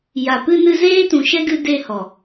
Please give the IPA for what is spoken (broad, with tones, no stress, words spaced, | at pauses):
ja˨pɨ˧nɨ˧ zeː˦tũ˨ʃɛ˦ɡɨ˧ de˧ hɔ˨